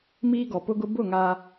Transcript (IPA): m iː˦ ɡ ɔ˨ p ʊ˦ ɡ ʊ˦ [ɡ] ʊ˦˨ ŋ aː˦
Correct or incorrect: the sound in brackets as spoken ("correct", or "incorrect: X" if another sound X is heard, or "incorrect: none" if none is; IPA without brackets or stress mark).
incorrect: b